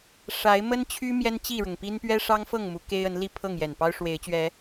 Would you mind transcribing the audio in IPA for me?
ʂ a˨˦ ɪ̯ m ə˦ n t͡ɕʰ y˦ m j ɛ˦ n t͡ɕ i˥˨ ɻ ʊ˩ ŋ p i˦ n p ɥ ɛ˦ ʂ ɑ˦ ŋ f ɤ˥˨ ŋ m u˨˦ k e˦ ɪ̯ ə˨˦ n l i˥˨ pʰ ɤ˥˨ ŋ j ɛ˨˩ n p ɑ˦ ʊ̯ ʂ w e˨˦ ɪ̯ t͡ɕ ɥ ɛ˨˦

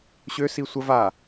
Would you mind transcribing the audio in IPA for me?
ɕ ø s i sʷ ə v a

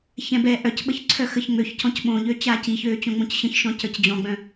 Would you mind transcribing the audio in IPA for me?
ç ɛ̃ b ɛː ʔ œ c ɓ ə ç ǀʰ œ x ə ç ŋ͡m ø ç c ɔ̃ c ɓ õ ʎ ø t͡ɕ aː c i ç øː t͡ɕ õ ŋ͡m õ c ɕ ə̃ ç ʃ ɔ̃ c ə˞ c d͡ʑ ɔ̃ ɡ͡b œ̃

